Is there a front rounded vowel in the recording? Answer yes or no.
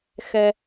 no